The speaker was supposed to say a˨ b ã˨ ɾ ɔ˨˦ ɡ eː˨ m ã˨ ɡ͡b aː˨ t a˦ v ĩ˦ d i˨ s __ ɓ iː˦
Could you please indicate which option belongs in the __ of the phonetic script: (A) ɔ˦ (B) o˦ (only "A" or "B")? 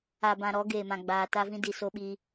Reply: B